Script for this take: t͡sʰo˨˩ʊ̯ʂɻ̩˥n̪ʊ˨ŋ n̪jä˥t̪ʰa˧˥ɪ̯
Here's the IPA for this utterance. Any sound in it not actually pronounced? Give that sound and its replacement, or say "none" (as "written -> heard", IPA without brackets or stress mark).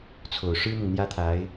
none